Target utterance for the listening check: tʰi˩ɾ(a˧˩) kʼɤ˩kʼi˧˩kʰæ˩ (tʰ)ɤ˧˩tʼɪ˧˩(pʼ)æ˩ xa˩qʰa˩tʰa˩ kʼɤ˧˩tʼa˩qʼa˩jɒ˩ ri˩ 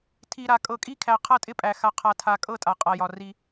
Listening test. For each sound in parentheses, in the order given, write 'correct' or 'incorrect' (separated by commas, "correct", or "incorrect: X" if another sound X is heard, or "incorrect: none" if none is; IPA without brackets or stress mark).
incorrect: a˩, incorrect: qʰ, correct